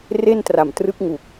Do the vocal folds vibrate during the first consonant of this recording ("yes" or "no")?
yes